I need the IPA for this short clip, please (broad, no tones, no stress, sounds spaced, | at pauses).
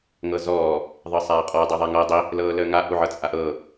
ŋ ɤ z ɔː | ðˤ ɤ sˤ aː qʼ ɔ dˤ əː ðˤ a ŋ ɤː dˤ i | l ɤː l əː ŋ a ʔ u ʕ ɤ t͡sʼ a ʔ ɤː